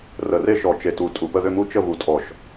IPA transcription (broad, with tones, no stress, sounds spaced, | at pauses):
r ə˧˩ r e˥˧ ʃ ɔ˧˩ t͡ʃ e˧˩ t u˧˩ tʼ u˧˩ p ə˥˧ ð ʏ˥˧ m u˥˧ t͡ʃ ə˥˧ v u˧˩ tʼ ɔ˧˩ ʃ